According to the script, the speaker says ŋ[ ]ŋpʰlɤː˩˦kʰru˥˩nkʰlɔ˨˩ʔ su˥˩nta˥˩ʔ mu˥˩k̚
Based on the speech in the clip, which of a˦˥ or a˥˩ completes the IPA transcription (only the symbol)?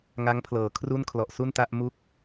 a˦˥